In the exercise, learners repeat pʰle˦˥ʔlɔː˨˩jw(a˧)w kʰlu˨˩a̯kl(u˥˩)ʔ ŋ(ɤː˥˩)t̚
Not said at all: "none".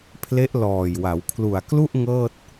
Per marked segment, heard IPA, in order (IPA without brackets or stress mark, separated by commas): a˩˦, u˥˩, ɤː˥˩